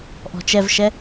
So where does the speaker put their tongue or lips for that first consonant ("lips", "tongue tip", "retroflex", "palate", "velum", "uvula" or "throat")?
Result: throat